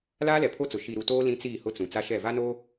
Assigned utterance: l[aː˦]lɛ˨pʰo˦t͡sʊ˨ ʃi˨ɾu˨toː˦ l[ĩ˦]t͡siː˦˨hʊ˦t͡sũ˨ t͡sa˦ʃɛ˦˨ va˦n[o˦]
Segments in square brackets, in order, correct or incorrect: correct, correct, correct

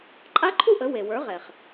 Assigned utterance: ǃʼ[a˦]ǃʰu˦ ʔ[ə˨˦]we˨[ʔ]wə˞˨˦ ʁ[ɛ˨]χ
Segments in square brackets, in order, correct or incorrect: correct, correct, incorrect: none, correct

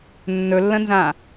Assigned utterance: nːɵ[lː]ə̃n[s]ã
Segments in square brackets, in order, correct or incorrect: correct, incorrect: z

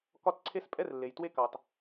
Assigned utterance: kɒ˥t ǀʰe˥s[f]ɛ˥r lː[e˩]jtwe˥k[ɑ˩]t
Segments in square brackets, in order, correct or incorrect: incorrect: pʼ, correct, correct

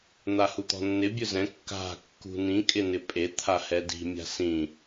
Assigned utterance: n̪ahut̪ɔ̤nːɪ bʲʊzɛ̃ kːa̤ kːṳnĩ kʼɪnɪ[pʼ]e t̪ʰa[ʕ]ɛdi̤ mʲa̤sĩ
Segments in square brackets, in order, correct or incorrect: correct, incorrect: h

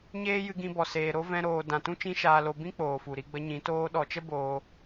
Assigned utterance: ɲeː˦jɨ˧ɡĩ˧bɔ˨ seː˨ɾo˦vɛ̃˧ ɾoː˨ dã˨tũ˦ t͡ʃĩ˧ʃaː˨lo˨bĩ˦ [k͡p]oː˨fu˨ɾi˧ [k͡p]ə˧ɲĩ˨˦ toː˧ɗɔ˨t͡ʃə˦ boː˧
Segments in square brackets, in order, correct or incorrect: correct, incorrect: ɡ͡b

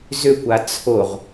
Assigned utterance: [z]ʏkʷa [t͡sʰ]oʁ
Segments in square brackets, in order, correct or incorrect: correct, correct

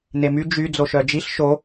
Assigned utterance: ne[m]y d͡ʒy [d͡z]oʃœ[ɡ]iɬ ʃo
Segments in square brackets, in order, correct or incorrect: correct, correct, incorrect: d͡ʒ

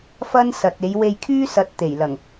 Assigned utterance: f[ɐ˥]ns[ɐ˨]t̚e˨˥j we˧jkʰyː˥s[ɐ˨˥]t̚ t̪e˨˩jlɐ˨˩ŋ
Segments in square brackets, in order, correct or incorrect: correct, correct, correct

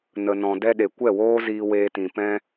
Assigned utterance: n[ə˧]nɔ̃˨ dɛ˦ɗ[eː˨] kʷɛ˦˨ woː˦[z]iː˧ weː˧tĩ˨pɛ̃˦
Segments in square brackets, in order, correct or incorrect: incorrect: ə˨, incorrect: e˨, correct

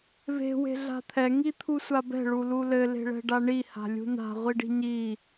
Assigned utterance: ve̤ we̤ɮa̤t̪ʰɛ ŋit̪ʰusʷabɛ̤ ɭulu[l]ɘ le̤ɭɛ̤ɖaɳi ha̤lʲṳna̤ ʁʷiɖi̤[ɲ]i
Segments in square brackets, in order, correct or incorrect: correct, correct

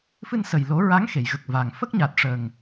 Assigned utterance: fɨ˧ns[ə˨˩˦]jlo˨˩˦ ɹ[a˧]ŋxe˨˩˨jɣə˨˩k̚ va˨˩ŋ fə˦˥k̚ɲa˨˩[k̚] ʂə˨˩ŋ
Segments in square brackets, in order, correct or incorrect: incorrect: ə˨˩, incorrect: a˧˥, incorrect: t̚

